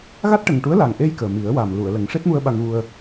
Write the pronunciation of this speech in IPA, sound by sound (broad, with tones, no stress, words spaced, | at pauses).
ɣa˦˥t̚ʈə˨˩ŋʈu˧˥ə̯ la˨˩ŋʔe˧j kəː˨˩mi˨˩˦ə̯wa˨˩m lu˨˩˨ə̯lə˨˩˦ŋ ʂe˦˥t̚mu˧ə̯ ɓa˧ŋɣu˧ə̯